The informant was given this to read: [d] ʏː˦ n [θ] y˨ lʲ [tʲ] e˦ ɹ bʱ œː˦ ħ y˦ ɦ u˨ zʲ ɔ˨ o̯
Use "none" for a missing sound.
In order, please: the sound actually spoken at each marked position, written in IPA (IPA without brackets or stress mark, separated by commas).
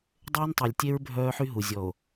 dˤ, tˤ, tʲ